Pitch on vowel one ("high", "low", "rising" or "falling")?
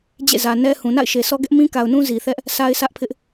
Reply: falling